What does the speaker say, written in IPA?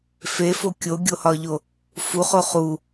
fefo kʲoɡʲohɒʎo | fuχo χu

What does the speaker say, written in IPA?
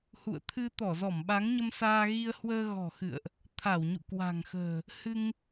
hṵ˧˨ə̯t̪ʰɨ˧t̪ɔ˧˩zɔ˧˩m ɓa˨˦ŋɲə˧msaː˧ɣi˧ə̯ hwəː˧ɣɔ̤˨˩ xɨ̰˧˨ə̯ʔ | t̪ʰa˧˩wɲṵ˧˨kwa̤˨˩ŋxə̤ː˨˩ | hɨ˧ŋ

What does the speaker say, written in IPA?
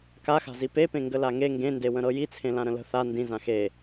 kaxa̤zi pepẽ ŋɡəlaŋe ŋɡẽndewə̃ɾɤ jit͡sʰẽlã ɾə̃lə̤ θa ndĩ zãxe

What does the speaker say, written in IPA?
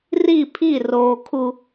ri˦˨pʰi˦˨ roː˨kʰu˨

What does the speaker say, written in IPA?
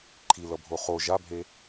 ǃʰilʌbʱo χo ʒabʱe

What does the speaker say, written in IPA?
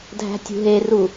dʱæ̤tʲṳɦeru

